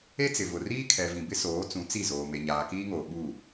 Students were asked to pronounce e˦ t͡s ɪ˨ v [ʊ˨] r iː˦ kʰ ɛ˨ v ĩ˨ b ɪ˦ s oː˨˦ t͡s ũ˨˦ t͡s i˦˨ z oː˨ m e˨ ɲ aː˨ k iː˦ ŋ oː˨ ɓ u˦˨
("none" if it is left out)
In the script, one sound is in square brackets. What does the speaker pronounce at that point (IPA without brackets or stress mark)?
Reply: ʊ˨